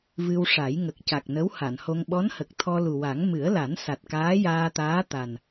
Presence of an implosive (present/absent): present